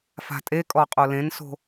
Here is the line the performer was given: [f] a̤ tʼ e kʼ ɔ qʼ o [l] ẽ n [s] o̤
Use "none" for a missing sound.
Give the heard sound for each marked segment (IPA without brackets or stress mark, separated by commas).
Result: f, l, s